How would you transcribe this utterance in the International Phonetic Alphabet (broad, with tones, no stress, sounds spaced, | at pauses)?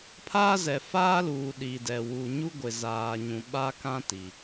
pʰ aː˦ z ɛ˨ f aː˦ l uː˨ ɗ i˨ d ɛ˨ w u˨ ɲ u˦ ɡʷ ɪ˨ z aː˨ ɲ ũ˨ ɓ a˦ k ã˦ t i˨